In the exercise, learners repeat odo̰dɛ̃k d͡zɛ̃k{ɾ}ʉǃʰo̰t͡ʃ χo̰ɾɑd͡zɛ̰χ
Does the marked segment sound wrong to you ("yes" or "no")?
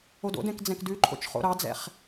yes